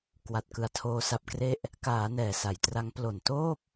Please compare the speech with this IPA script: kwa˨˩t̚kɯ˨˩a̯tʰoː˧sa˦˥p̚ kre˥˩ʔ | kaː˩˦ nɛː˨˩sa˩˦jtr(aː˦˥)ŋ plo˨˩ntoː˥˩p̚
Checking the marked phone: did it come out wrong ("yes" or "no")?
yes